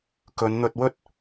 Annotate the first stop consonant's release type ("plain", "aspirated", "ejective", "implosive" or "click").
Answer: plain